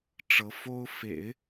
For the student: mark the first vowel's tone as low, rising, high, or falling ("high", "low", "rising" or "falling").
rising